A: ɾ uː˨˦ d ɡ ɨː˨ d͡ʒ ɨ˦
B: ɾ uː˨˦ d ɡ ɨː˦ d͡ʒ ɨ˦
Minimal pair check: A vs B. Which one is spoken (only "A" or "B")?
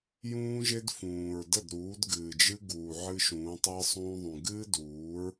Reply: A